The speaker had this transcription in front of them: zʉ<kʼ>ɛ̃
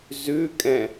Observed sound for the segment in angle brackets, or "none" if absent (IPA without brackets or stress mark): kʼ